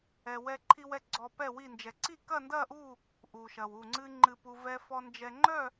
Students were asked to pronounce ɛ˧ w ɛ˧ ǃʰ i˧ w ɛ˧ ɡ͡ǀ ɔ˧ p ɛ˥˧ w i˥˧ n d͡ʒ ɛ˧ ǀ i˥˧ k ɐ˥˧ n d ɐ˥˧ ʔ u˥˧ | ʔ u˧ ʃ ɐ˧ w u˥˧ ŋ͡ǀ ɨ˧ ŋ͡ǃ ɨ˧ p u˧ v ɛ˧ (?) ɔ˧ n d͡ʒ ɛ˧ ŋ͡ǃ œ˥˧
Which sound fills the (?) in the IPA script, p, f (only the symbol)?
f